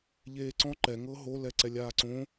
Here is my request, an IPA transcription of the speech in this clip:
ʎ eː ǀ ɔ̃ ǃ ɛ ŋ ɤ ɦ o l ɛ ǀ ɛ lʲ aː ǀ õ

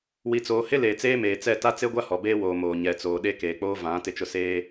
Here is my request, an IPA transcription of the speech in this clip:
w i˨ t͡s oː˨ h ɪ˦ l eː˨ t͡s eː˦ m eː˨ t͡s ɛ˦˨ t a˦ t͡s e˦ ɡʷ a˦ h ɔ˨ b eː˦ w oː˨ m oː˨ ɲ ɛ˨ t͡s oː˨ ɗ e˦ k eː˨ k͡p oː˦ v ã˨˦ t ɪ˦ t͡ʃ ʊ˦ s eː˦

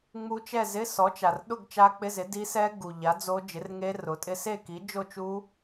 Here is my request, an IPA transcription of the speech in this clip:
ŋ͡m u˦˥ t͡ʃ ɛ˥˧ z ɪ˧˥˧ s ɔ˨˥ t͡ʃ a˨ r ɗ ʊ˥˧ ɡ t͡ʃ a˦˥ k͡p ɪ˧˥˧ z ɪ˨˥ d i˦˥ s ɛ˦˥ ɡ u˨ ʎ a˨˥ d͡z o˦˥ d͡ʒ ɪ˨˥ r ŋ e˦˥ r ʊ˨˥ tʼ ɪ˦˥ s e˥˧ k i˨˥ d͡ʒ o˥˧ t͡ʃ u˦˥

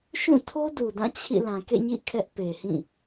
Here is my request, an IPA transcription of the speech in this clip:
ʃ ũ˦˨ tʰ o˦ d u˨ d ã˦˨ t͡ɕʰ ḭ˦˨ l ã˨ k ḛ˦˨ ɲ ḭ˦˨ kʰ ɛ˦ ʔ p e˨ h ĩ˦˨

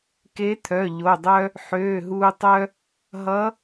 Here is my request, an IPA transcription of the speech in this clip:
k e˧˥ t̪ʰ œ˩˧˩ ʎ o˩˧˩ dˤ œ˥ | ħ øː˩˧˩ ɦ uː˧ tˤ œ˥ | ɦ ʌ˧˥

